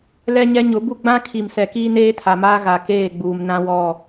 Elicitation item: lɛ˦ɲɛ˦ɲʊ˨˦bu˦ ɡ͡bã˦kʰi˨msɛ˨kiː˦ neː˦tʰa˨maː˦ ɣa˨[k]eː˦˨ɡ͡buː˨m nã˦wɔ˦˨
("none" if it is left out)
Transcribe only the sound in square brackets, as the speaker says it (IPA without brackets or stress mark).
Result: k